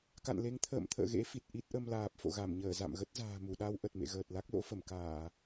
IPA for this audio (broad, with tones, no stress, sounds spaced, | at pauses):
k a̰˧˨ n l e˨˦ ŋ t̪ʰ ə̰ː˧˨ m t̪ʰ ə̰ː˧˨ ɣ ḛ˧˥ f i˨˩ t̚ ʔ i˦˥ t̚ ʔ ə˧ m l aː˨˩ p̚ f o̰˧˨ ɣ a˧˩ m ɲ əː˧˩ z a̰˧˨ m ɣ ə˦˥ t̚ z a̤ː˨˩ m u˧˩ ɗ a˧ w ʔ ə˨˩ t̚ m ḛ˧˨ ɣ əː˨˩ t̚ l a˦˥ k̚ l o̰˧˥ f ə˧˩ m k aː˧˩˨